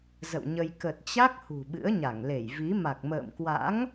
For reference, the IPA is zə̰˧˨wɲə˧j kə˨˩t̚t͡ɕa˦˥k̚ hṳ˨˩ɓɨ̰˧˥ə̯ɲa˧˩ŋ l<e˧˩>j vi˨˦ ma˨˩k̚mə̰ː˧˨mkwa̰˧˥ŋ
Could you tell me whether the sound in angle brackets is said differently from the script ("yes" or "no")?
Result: no